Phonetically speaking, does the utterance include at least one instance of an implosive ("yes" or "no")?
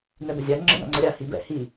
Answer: no